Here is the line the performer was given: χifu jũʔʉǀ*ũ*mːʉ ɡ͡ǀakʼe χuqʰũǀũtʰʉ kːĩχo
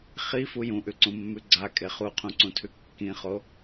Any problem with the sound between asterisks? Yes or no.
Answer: no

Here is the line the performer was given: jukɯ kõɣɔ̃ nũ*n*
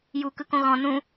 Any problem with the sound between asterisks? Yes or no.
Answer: yes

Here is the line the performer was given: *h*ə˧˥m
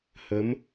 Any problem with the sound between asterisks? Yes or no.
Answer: no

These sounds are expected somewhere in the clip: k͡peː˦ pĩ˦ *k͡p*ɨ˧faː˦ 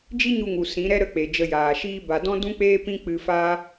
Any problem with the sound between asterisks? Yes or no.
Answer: no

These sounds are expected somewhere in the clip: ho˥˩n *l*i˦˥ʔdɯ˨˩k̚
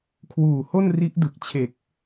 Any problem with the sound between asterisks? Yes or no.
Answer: yes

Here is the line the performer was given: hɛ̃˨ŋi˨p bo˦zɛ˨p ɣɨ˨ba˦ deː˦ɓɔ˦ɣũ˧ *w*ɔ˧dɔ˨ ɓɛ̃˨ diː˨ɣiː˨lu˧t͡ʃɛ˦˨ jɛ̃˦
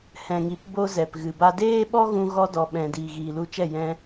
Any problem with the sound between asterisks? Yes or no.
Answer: yes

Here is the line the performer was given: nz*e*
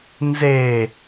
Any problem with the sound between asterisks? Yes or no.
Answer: no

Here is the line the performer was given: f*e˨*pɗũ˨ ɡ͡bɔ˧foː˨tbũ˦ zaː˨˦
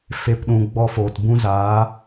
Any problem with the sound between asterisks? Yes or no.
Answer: no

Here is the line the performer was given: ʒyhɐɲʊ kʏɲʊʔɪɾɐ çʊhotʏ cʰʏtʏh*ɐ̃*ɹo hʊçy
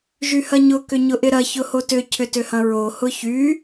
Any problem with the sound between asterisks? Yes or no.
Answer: no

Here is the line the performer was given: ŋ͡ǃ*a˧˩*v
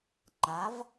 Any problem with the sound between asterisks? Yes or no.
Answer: yes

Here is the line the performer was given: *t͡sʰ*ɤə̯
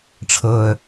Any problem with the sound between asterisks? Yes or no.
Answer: yes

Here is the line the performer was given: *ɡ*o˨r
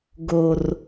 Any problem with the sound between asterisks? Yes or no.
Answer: no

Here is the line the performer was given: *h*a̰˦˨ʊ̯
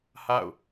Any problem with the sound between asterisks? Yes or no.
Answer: no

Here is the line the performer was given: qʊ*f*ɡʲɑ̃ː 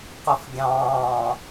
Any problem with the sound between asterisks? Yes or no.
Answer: no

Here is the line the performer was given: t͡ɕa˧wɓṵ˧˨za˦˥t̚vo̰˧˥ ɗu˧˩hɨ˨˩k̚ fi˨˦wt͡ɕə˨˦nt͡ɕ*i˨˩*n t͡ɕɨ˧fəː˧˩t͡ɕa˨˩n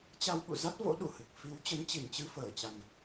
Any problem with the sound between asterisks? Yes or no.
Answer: no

